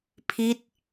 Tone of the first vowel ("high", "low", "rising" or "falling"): falling